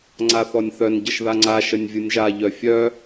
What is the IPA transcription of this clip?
ŋ͡ǀaθɔnʲθœn ɟəʃðaŋ͡ǀa ʃənʲvʲɯnʲʒa ʎœfʲœ

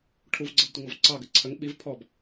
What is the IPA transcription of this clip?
ʈʰuvɡ͡ǀɤbtʷəŋɔv ǀɑɡə ǀʰəŋ ɓiv pʰɔb

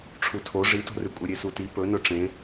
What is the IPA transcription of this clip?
ʈ͡ʂʰutʰo ʐito̤rʉkʷʼe ɾʲesuti pɵnɵ ʈ͡ʂẽ

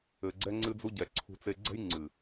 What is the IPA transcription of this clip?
ɘ˨ɡ͡ǀɛ˧ ŋ͡ǀɨ˧d͡zu˧ɟɛ˨ ǀʰṳ˧t͡se˧ ɡ͡ǀɛ̤˦jŋ͡ǀɨ˨

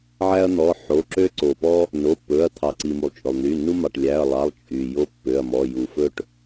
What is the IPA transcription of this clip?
ʕæ˦ɐ̯n̪ɔ˩˧˩ħo˩˧˩ǁø˦ ǀo˩pɔ˦ | no˩˧˩pːɵ˩˧˩ɐ̯ t̪ʰɑ˩ǀi˩mu˩lˠ t͡ʃʼɵ˩lˠn̪y˩˧˩nːu˦mɑ˩˧˩ʈ lʲæ˩˧˩ɐ̯lˠɑ˩˧˩lˠ t͡ʃʼy˩ jo˦pːø˩˧˩ɐ̯mɔ˩˧˩ ju˩fɵ˦ʈ

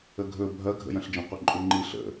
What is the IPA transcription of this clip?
əɡʱɵ bʱɐ ɡʱə̰jɐ̃ɬd͡ʒə̃ qʷɐǃʼuŋ͡ǃi ɬə̰

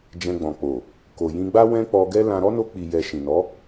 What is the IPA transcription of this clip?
d͡ʒɛ̃˧ɡ͡bɔ̃˨k͡po˨ | ko˨jĩ˧ɡ͡ba˦ wɛ̃˦k͡pɔ˧ɡɛ˦lã˧ ɾɔ˦no˧k͡pi˨jɛ˨ ʃĩ˨nɔ˨˦

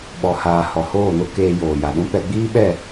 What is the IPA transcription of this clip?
ɓɔ˨haː˨ hɔ˨hoː˦˨no˦keː˧ joː˨ja˨ɗũ˦ pɛ˧ɡ͡biː˦ɓɛ˦˨

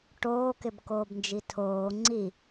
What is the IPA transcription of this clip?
ʈoːkɪbkoːbnd͡ʒi tʰoː ŋ͡ǀi

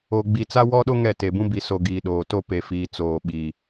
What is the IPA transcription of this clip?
o˨ ɡ͡bi˨t͡sa˦wɔ˦ɗo˦ ŋɛ˦˨te˨bũ˦ bi˨so˨ ɡiː˨ɗoː˨ to˦pe˨fiː˨ t͡soː˨ɓiː˨

